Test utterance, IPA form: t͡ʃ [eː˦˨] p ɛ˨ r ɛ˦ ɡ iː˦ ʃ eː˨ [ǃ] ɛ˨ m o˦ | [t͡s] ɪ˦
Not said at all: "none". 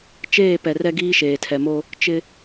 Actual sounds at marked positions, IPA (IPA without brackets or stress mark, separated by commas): eː˦˨, tʰ, t͡ʃ